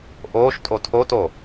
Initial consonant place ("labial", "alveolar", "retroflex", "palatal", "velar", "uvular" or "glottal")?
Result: glottal